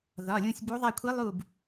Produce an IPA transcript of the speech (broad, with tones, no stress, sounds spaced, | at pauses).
ð ɒ˩˧˩ lʲ ũ˦˨ sʲ b u˧˥ ðˤ a˦˨ kʷʰ i˧˥ lˠ u˦˨ b